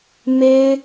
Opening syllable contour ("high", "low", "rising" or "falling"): high